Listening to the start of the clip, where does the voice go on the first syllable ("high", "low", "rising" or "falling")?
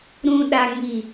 low